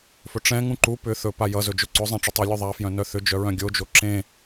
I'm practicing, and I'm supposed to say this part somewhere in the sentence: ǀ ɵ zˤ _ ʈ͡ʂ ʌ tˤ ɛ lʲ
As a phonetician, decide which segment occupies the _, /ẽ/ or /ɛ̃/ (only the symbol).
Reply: ɛ̃